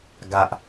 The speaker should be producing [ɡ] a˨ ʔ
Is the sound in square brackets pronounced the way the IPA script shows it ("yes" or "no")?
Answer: yes